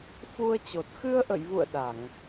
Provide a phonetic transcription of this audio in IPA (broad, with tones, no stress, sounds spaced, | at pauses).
f u˧ ə̯ t͡ɕ o˨˩ t̚ x ɨ˧ ə̯ ʔ ə̰˧˨ j v ṵ˧˨ ə̯ ɗ a˧˩˨ ŋ